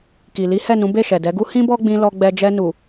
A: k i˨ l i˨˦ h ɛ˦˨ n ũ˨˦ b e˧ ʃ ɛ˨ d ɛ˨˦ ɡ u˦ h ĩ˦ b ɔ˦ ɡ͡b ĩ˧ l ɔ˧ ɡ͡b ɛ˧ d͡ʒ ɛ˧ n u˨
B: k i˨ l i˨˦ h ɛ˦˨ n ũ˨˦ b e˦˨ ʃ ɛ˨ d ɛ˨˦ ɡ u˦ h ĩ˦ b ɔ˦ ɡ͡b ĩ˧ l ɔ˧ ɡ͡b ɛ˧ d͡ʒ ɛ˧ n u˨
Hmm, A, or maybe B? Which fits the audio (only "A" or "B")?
B